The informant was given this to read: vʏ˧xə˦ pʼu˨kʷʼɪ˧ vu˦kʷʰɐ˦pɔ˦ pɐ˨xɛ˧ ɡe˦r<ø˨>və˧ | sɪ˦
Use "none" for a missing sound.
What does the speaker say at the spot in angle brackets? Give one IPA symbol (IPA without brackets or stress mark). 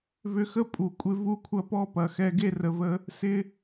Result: ə˨